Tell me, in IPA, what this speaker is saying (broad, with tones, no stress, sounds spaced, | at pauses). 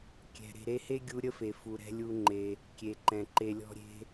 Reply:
kʲ ɛ̤˨ ɾ e̤˨ ɾ e˧ h e˦ ɡʲ u˧ ɾʲ ə˦ f e˨ f u˨ ɾ ɛ̤˧ lʲ u˧ ŋ͡ǃ e˧ | kʲ e˨ ǃ ɛ̃˨ ǃ e˧ lʲ ɔ̤˦ ɾʲ e̤˦